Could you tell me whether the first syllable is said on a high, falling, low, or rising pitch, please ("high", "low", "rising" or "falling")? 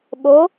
rising